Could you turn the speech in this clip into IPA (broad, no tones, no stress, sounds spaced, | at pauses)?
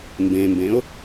m b ẽ m b ẽ ʊ̯